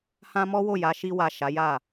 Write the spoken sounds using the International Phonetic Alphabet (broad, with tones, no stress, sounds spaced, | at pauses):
h ã˦ m ɔ˦ w o˦˨ j a˨˦ ʃ i˧ w a˨ ʃ a˨˦ j a˦˨